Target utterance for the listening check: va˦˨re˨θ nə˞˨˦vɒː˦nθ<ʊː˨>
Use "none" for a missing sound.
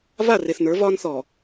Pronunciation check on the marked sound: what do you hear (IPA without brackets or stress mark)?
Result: ɔː˨